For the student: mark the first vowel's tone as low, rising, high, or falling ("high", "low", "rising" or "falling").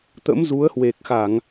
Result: rising